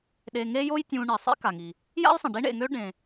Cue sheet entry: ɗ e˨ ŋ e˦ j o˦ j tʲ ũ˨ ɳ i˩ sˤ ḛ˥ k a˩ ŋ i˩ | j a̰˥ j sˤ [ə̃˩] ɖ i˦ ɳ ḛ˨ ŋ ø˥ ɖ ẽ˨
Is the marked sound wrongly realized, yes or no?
no